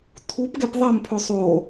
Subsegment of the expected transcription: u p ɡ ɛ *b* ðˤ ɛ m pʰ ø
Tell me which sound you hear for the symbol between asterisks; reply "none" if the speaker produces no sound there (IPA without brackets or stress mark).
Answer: p